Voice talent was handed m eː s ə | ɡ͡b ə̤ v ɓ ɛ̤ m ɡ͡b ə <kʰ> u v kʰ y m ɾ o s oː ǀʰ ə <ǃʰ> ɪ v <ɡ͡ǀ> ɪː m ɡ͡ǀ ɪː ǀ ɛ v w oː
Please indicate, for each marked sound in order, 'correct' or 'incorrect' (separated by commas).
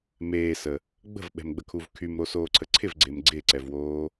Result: correct, incorrect, correct